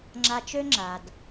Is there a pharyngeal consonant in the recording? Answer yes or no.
no